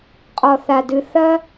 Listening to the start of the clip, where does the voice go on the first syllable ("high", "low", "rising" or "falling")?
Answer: low